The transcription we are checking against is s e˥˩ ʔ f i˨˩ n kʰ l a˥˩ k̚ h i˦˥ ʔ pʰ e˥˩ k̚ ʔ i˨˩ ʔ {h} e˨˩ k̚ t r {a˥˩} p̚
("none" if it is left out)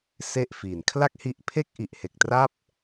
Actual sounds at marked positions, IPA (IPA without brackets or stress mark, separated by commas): h, a˥˩